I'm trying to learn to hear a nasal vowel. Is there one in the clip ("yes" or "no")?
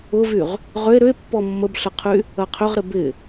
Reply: no